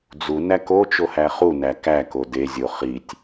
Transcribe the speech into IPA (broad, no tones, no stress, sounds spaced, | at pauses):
d͡z u n æ k o t͡ʃ o h æ χ u n æ k æ k o d e zʲ o χ i tʲ